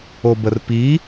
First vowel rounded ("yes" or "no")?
yes